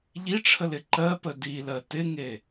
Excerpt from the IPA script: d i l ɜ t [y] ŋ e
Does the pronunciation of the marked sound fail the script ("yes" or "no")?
yes